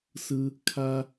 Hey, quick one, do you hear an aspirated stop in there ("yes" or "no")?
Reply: yes